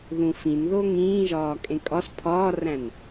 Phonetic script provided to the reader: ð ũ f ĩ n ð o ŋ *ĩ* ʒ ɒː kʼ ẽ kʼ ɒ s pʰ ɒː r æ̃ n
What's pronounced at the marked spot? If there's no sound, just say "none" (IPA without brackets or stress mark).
ĩː